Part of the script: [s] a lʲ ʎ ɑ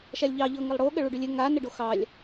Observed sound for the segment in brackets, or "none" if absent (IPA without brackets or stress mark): ʃ